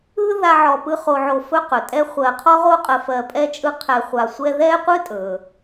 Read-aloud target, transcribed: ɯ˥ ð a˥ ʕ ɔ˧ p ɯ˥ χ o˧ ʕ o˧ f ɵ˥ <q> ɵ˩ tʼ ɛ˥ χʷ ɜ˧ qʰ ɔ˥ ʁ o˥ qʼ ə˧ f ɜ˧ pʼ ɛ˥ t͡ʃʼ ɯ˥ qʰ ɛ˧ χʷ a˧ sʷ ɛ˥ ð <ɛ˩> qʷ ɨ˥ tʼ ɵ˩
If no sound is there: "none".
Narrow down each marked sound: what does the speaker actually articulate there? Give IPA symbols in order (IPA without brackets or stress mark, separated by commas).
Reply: q, ɛ˥